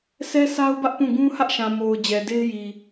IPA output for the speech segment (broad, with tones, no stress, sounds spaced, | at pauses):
sʰ ɛ˦ sʰ a˦ ʊ̯ b ä˦ ʔ p ũ˦˨ ɡ ũ˦ h ä˦ ʔ ʃ ã˨ m o˨ ʊ̯ d͡ʑ ɛ˨ d e˦ ɪ̯ j i˨